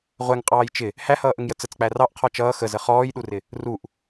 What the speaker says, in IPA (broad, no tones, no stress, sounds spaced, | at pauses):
ʁʷ ɛ ŋ qʼ ɑː j t͡ʃ ɪ | h æ h ʌː ʔ ə ŋ j ə t͡s ə t͡s k͡p æ r ɑ ʔ qʰ ɔ t͡ʃ ʌː x ə z ə χ ɔː j ɗ u r ɪ | r u ʔ